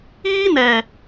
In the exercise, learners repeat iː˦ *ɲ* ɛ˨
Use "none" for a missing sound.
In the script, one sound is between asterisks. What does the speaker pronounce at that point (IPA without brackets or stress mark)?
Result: n